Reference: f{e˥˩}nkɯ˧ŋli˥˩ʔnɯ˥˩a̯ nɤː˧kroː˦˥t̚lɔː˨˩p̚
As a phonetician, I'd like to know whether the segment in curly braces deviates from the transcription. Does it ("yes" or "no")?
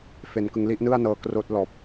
yes